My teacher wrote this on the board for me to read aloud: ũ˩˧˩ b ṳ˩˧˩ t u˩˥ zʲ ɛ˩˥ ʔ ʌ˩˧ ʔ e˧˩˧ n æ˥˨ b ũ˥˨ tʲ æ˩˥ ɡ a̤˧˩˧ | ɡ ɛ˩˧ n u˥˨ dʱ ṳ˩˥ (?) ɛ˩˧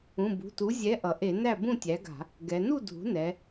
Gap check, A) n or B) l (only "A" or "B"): A